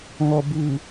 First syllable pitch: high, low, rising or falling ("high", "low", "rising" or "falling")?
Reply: low